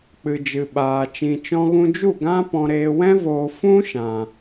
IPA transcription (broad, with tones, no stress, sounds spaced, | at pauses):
k͡p ɨ˨ d͡ʒ ɨ˨ ɓ aː˨ t͡ʃ ĩ˨ t͡ʃ ɔ̃˧ ɣ ũ˧ d͡ʒ u˦˨ ɡ ã˦ p ɔ̃˧ ɾ eː˧ w ɛ̃˦ v oː˧ f ũ˦ ʃ ã˨